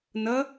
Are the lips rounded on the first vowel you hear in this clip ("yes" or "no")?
no